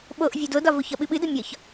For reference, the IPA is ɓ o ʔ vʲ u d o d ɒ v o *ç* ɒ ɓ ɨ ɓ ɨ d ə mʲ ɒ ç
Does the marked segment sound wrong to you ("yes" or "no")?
no